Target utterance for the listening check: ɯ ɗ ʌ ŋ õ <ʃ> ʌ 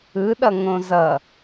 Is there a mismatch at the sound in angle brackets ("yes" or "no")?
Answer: yes